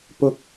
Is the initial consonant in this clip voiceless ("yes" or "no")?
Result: yes